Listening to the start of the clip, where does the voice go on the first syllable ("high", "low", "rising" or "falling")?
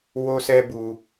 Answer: high